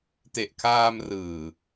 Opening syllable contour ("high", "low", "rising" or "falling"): low